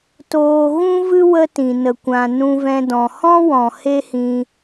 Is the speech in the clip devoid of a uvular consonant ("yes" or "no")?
yes